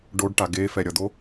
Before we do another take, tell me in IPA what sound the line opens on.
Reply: ɖ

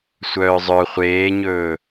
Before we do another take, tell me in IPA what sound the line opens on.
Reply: sʷ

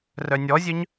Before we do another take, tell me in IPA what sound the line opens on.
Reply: r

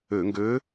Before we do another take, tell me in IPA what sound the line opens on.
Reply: ø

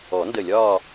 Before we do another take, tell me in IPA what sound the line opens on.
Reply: ɔ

